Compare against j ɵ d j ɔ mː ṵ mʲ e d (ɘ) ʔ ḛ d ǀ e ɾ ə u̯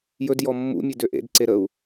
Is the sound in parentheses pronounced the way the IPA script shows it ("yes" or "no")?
no